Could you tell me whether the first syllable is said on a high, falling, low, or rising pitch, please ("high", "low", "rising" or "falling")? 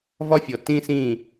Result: high